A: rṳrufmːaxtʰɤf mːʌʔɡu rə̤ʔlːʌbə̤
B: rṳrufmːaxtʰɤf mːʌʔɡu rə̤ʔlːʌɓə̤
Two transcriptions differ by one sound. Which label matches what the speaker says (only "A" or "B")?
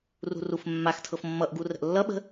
B